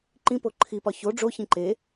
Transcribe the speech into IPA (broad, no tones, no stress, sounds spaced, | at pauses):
ǃ ĩ p o ǃʰ i p ɒ ç o ɖ͡ʐ o ç ĩ ǃ e